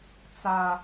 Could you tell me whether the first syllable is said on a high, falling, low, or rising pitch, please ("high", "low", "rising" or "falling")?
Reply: low